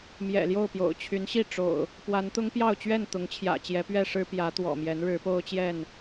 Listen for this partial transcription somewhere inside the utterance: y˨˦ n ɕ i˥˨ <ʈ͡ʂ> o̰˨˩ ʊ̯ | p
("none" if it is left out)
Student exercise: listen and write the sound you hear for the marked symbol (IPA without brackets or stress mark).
ʈ͡ʂ